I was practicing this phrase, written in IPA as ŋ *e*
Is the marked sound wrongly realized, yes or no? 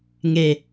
no